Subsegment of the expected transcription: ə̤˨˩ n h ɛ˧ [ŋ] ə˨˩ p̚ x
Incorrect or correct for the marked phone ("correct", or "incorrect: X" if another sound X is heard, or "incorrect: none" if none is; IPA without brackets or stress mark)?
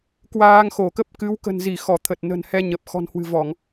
incorrect: ɲ